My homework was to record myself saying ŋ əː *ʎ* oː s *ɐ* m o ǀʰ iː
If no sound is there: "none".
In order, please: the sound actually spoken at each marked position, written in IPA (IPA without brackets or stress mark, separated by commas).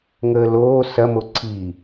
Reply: l, ɐ